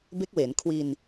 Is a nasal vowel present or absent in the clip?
absent